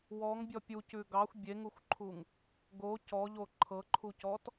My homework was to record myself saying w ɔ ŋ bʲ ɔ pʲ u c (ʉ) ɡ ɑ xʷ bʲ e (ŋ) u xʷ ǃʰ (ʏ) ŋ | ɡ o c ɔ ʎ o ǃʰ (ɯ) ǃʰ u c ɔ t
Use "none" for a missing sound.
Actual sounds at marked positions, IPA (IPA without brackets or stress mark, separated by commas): ʉ, ŋ, u, ɤ